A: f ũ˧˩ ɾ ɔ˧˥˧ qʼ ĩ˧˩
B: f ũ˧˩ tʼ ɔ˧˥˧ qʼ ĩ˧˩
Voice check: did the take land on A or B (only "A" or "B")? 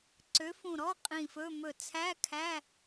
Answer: A